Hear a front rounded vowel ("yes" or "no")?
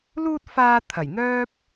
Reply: yes